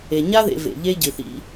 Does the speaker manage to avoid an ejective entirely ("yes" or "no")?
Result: yes